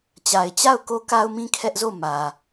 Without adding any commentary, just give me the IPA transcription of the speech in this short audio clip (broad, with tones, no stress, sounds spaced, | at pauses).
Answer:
t͡ɕ a˨ ɪ̯ t͡ɕ a˦˨ ʊ̯ k o˦ k a˦ ʊ̯ m ĩ˦ kʰ ɛ˦ ʔ z o˦˨ m ä˨